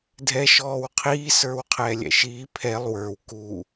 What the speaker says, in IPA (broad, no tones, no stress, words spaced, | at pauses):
dʱɛʃɔːw qʰiːsə˞w qʰɛːlʲɛ̰ʃiː pʰɛlˠ wə˞w ku